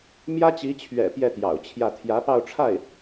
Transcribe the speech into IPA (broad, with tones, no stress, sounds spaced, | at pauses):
m j ä˥ t͡ɕ i˧˥ t͡ɕʰ ɥ ɛ̰˨˩ p j ɛ˥˩ t̪ j ɑ̰˨˩ ʊ̯ t͡ɕʰ j ä˥˩ t̪ʰ j ä˧˥ p ɑ˥˧ ʊ̯ ʈ͡ʂʰ a˥˩ ɪ̯